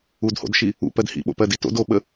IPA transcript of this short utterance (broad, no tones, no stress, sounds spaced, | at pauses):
u d h o̰ d ʃ i | ṵ p ɜ d h ḭ ɓ o̰ p ɜ d i t o̰ d o ɓ ə